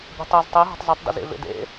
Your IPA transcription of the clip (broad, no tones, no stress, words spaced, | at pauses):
bʲɛ̤tˤɛz tˤe ɦɔ̤tˤzɛtˤ də̰zḛvḛdḛ